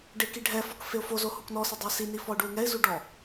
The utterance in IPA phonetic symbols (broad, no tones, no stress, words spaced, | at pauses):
ɖekiɖʱɛfɔk feʊ̯fozo huknɔsɛ dˤʊɪ̯sini fɔʊ̯ɖuɪ̯ŋɛɪ̯zu ɖɔ